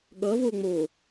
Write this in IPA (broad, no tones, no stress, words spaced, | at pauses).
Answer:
ɠʌ voŋ͡mo